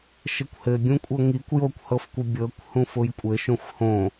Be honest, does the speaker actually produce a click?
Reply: no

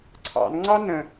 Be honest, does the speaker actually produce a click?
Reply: yes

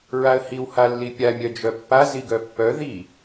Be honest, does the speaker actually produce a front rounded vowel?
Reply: yes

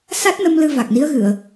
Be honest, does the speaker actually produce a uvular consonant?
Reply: no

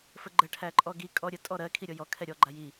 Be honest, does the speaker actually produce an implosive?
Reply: no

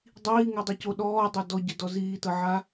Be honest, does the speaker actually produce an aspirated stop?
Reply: no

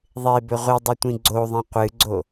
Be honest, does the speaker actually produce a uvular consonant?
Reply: yes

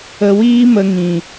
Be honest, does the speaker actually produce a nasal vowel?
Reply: yes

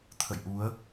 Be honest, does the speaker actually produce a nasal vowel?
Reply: no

